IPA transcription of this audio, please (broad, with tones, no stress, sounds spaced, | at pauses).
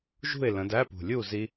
ʒ ṳ˥˨ ɪ̯ l ə̃˨˦ d æ˧˥˧ p ṳ˨˩ lʲ u˥˨ z i˦˥